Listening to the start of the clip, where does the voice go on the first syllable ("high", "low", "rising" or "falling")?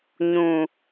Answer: low